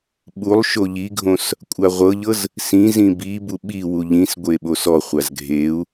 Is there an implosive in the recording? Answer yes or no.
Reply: yes